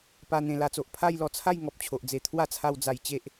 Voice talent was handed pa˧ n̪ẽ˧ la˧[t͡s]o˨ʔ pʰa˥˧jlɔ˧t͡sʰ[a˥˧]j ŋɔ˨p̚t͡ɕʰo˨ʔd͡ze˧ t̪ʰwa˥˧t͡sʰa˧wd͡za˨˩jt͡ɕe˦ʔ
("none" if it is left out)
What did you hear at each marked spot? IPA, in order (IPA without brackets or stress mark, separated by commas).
t͡s, a˥˧